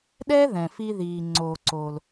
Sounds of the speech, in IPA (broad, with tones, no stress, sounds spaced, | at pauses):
ɗ ɛ˥ ð ɛ̃˩ f i˧ ð iː˩ ŋ͡ǀ oː˩ ǀ oː˩ l